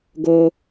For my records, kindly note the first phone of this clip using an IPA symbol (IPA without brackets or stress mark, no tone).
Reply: ɡ